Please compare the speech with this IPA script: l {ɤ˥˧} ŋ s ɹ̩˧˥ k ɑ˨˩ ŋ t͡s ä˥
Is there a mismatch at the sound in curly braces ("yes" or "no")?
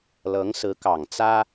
yes